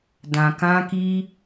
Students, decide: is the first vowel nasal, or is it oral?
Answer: nasal